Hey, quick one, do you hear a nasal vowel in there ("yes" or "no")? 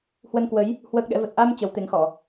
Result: no